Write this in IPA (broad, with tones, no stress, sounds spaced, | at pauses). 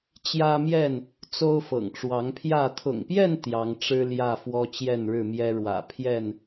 t͡ɕ j ä˦ m j ɛ˥˨ n | t͡s o˦ ʊ̯ f ɤ̰˨˩ ŋ ʈ͡ʂ w ɑ˨˦ ŋ pʰ j ä˥˨ t̪ʰ ʊ̰˨˩ ŋ p j ɛ˥˨ n t̪ j ɑ˨˦ ŋ ʈ͡ʂ ɻ̩˦ l j ä˥˨ f w ɔ˦ t͡ɕ j ɛ˥˨ n ɻ ɻ̩˥˨ m j ɛ˦ ɻ w ä̰˨˩ pʰ j ɛ˥˨ n